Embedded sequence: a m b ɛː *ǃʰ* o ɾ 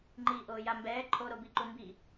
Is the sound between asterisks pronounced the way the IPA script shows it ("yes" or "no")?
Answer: yes